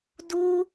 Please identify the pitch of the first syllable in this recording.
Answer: high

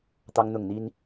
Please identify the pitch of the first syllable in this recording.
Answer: high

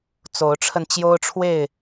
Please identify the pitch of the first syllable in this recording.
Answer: rising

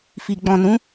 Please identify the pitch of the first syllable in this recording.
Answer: low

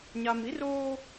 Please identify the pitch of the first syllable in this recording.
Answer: high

